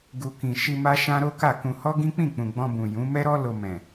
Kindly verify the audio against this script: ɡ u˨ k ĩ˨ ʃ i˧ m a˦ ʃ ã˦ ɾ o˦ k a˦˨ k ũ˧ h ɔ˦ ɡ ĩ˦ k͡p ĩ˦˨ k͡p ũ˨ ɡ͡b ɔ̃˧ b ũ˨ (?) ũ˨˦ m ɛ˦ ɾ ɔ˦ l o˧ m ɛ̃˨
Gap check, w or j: j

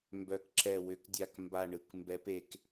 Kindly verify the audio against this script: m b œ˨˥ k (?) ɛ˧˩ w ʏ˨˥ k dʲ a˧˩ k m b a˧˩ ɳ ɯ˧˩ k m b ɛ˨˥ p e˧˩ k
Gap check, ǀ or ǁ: ǁ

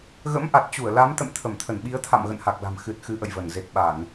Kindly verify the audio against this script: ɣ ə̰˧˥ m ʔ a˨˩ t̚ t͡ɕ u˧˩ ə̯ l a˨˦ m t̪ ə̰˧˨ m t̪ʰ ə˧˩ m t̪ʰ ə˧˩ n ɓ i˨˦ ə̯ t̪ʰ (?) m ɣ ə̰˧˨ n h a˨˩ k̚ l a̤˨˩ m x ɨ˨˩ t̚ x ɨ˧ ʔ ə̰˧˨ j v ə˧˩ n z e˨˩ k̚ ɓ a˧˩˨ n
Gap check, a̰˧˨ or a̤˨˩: a̰˧˨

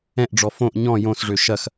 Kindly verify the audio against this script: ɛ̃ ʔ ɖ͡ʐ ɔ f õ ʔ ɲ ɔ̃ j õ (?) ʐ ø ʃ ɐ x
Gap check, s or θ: s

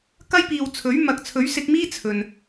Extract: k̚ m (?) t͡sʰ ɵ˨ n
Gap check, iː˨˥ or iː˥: iː˥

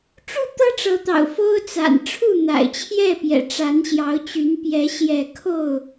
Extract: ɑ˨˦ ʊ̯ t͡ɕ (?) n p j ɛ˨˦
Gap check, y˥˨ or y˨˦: y˨˦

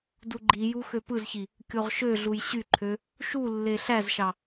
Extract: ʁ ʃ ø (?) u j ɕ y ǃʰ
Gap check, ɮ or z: ɮ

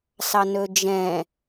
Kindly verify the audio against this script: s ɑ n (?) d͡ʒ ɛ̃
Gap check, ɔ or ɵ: ɵ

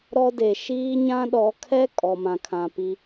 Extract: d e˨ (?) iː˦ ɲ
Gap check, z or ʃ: ʃ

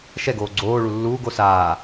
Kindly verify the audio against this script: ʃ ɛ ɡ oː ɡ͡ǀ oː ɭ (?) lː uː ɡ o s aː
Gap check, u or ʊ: u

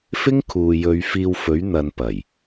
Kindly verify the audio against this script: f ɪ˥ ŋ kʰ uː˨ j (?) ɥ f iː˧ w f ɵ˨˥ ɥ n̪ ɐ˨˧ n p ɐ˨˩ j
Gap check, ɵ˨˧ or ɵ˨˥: ɵ˨˧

